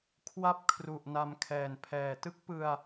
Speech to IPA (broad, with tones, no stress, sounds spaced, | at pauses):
kʰ w a˥˩ p̚ kʰ r u˨˩ ʔ n a˧ m kʰ ɛː˨˩ n pʰ ɛː˨˩ t ɯ˦˥ k̚ p ɯ˧ a̯